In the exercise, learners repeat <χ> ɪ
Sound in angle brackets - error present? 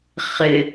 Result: no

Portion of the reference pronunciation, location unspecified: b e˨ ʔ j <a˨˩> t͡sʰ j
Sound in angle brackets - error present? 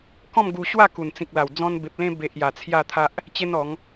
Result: no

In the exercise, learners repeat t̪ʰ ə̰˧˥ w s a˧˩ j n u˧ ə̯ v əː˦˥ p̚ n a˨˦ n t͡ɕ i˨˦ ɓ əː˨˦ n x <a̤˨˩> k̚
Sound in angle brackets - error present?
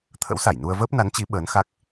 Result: yes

